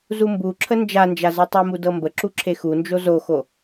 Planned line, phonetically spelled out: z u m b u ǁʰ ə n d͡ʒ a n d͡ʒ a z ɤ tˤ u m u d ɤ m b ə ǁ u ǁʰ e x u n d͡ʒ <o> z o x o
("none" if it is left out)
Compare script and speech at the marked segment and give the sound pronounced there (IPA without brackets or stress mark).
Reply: o